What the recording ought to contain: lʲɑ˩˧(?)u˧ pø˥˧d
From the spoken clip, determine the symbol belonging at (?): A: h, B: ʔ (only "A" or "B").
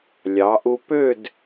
B